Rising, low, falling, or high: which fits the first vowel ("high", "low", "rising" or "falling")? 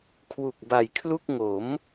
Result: low